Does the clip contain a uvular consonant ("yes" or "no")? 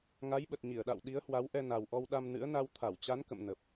no